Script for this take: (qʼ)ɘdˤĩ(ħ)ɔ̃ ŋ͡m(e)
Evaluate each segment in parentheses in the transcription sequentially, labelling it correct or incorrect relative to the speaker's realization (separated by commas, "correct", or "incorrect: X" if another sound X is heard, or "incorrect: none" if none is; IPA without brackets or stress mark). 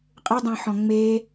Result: correct, correct, correct